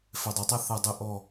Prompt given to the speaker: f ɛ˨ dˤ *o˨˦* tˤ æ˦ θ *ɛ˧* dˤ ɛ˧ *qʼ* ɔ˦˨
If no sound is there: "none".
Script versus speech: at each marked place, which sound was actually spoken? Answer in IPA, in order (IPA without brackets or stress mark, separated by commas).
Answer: o˨˦, æ˧, ʔ